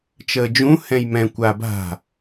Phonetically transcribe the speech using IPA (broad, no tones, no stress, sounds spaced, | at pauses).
t͡ʃ əː d͡ʒ ũ h ɛ̃ j m ɛ̃ kʷ a b a̤